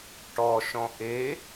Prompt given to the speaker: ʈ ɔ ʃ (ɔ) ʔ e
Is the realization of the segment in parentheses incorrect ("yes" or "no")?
yes